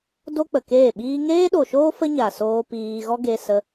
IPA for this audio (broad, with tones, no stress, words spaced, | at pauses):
do˦k͡pə˨keː˦˨ɓiː˦ ŋeː˦ɗo˨ʃoː˦ fə˦ɲa˨soː˧ piː˧ ɣɔ˦ɡe˧ sə˧